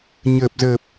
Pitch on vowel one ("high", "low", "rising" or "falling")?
low